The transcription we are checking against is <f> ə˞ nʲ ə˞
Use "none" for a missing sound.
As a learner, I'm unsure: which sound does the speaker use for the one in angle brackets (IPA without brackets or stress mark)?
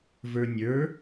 v